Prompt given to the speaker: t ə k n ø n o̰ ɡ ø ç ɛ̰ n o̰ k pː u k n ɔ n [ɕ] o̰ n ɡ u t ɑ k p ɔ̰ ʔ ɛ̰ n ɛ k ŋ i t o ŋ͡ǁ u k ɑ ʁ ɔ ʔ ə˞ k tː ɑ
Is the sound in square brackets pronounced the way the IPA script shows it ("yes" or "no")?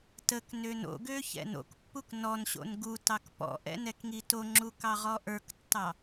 yes